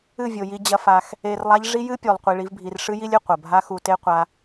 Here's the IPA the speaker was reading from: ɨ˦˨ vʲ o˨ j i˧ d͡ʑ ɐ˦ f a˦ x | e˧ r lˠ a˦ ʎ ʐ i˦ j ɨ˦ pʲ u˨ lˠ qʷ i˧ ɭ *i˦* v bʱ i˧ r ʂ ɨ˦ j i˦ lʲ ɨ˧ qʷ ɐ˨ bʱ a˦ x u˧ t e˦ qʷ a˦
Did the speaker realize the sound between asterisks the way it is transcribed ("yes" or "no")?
yes